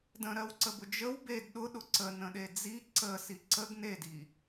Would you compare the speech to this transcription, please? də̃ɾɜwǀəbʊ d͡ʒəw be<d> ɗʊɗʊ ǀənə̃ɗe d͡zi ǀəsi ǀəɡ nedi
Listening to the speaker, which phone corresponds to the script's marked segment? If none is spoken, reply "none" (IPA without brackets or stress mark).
d